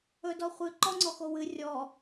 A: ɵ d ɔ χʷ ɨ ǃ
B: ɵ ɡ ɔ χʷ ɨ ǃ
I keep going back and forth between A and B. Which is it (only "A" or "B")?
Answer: A